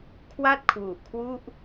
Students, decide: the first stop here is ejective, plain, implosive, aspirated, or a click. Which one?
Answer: aspirated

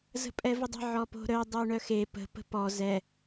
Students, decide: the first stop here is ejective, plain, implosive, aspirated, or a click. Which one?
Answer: ejective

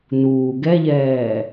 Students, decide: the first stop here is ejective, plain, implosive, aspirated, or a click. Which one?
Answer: plain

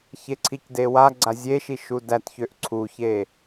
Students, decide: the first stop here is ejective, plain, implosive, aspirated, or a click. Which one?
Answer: click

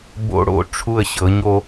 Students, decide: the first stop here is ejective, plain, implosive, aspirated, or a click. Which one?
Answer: plain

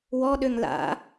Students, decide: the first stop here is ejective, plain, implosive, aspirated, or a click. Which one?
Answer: implosive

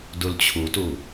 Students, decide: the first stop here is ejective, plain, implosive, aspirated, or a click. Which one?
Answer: plain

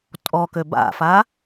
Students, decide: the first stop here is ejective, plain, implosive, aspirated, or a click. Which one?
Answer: ejective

